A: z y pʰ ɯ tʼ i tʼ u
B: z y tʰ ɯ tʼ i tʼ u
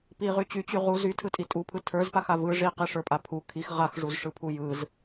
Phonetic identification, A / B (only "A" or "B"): B